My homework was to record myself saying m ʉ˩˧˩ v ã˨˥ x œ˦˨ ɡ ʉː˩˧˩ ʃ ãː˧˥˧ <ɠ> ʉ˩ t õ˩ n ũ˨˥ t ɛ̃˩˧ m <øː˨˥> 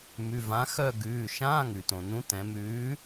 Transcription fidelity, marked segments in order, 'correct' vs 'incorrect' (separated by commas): incorrect, incorrect